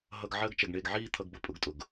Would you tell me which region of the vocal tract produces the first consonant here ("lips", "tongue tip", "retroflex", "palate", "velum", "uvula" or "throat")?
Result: throat